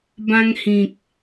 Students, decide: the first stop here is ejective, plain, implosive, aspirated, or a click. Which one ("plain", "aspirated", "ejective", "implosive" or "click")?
plain